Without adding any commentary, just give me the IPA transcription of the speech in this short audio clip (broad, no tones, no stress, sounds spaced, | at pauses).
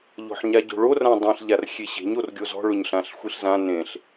ʎ ɔ̤ ħ ɲ a ɟ o̤ ɭ o r ã dˤ ĩ ɬ ʎ a r xʲ e ɕ e̤ ɲ o r ɡʲ o z ɔ̤ ɭ ʊ ɲ ɬ ã ɬ xʷ i ɬ z ã n ẽ ɬ